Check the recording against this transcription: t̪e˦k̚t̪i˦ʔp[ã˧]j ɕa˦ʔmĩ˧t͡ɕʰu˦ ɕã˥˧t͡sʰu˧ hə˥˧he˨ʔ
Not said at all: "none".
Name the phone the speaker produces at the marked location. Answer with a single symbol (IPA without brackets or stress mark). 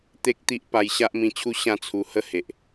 a˧